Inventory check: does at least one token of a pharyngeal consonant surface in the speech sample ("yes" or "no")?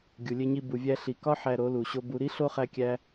yes